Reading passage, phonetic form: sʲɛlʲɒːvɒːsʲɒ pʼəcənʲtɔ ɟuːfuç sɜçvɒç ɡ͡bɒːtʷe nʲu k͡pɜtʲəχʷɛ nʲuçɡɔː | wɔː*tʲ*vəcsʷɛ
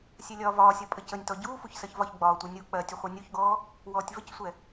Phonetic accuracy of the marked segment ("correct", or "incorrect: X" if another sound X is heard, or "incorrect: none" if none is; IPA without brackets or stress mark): correct